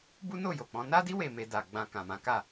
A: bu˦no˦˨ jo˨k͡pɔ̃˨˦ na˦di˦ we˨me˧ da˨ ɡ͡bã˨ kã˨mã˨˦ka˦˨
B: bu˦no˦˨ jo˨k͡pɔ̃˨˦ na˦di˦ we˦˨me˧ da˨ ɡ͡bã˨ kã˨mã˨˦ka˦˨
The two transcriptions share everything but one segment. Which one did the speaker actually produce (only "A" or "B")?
B